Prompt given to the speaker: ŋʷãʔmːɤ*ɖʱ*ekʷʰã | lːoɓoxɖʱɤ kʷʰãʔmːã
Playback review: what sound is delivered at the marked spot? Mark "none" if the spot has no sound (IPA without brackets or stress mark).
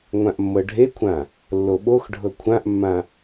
ɖʱ